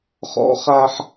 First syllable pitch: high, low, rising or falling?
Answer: high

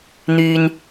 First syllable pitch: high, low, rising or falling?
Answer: low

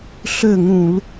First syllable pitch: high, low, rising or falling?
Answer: falling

